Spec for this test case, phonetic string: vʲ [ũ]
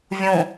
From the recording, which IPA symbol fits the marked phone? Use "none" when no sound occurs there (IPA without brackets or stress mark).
ũ